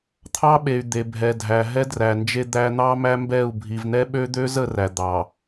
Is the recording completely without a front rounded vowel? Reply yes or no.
no